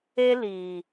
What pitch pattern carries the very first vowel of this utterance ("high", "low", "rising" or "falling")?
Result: high